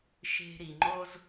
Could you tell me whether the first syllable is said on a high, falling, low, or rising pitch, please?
high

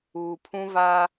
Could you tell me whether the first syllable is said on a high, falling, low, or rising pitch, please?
low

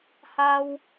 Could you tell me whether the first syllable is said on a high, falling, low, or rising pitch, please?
high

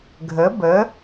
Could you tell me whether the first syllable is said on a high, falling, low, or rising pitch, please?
rising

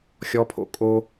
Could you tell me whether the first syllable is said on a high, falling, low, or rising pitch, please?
high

